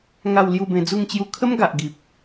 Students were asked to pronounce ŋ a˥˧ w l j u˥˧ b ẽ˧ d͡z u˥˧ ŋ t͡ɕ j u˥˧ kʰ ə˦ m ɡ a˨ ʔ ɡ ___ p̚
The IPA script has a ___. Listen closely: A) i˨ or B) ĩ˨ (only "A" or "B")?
A